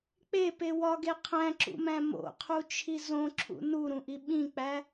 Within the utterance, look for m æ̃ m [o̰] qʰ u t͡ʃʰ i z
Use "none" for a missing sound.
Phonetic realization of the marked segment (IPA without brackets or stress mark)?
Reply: o̰